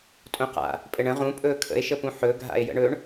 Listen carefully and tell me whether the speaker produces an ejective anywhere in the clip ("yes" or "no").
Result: yes